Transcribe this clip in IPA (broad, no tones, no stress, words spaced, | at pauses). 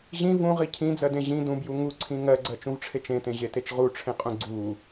ʑĩ vũʁi cʰĩd͡zɜdẽ ʑĩ dũbju ŋuǀʰĩ ŋɜɡ͡ǀɜt͡ʃũvʈ͡ʂʰet͡ʃ ẽtẽʑetet͡ʃ ʁuʈ͡ʂʰẽqʼũ ɡ͡ǀu